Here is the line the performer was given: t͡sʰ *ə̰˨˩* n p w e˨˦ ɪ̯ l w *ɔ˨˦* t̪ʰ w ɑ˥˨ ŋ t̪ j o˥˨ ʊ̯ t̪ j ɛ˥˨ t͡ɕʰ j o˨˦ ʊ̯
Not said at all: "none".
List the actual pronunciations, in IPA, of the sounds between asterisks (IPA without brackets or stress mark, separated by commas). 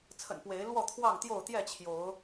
ə̰˨˩, ɔ˥˨